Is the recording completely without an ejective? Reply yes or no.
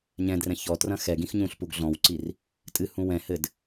no